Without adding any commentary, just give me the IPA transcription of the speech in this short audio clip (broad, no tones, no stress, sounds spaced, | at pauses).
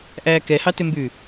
ʔ æː k ɛ h ɑ t ø m b ʉ